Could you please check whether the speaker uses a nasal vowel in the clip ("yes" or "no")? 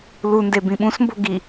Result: yes